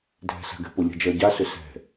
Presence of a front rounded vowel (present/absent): present